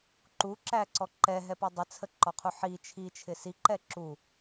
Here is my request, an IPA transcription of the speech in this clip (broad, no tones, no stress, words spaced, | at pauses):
ǃuǁæǀɔ ǃɛɦɛpɔ dˤɪt͡sʰəǃɔqʰu ħi t͡ʃʰit͡ʃʰɪ siǃɛ ǁu